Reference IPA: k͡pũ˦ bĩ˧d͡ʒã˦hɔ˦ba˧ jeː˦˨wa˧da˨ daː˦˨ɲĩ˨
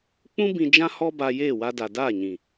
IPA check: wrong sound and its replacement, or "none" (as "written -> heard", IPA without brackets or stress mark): none